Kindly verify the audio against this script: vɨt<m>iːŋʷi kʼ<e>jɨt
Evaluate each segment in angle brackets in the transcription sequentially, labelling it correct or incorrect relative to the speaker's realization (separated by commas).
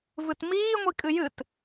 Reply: correct, incorrect